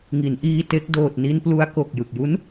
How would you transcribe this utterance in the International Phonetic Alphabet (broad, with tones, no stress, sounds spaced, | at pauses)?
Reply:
ŋ i˩˦ n ʔ iː˧ t e˦˥ k̚ d oː˨˩ t̚ n i˧ n p l u˧ a̯ k o˨˩ k̚ j ɯ˨˩ k̚ j u˦˥ n